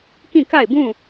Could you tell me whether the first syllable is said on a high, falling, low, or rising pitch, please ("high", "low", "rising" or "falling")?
falling